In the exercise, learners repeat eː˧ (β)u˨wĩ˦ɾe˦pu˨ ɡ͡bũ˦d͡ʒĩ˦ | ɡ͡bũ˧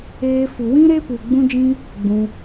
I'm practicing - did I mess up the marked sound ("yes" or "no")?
yes